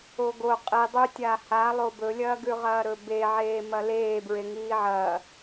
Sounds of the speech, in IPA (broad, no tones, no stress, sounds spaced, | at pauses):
o ɡ o qʼ i dˤ ʉ tʲ aː h a lˠ o b ɵ lʲ ɐː ɡ ʉ ʁ ɐː ɾ ɵ b e ʕ eː m ɐ l eː b ɹ e ŋ iː ʕ ɐː